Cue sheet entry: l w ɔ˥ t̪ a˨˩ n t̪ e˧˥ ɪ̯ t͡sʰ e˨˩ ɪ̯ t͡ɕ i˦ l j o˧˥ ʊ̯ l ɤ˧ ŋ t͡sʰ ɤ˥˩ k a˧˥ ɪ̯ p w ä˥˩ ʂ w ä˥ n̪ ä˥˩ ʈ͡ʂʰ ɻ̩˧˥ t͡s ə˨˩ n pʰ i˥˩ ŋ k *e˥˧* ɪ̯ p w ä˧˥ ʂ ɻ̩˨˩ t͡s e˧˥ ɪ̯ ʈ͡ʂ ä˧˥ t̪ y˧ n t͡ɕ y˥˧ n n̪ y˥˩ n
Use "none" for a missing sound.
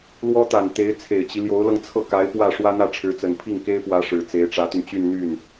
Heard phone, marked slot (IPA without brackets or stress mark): e˥